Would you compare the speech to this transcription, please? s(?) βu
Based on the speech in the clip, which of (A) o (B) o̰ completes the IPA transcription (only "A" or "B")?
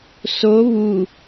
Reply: A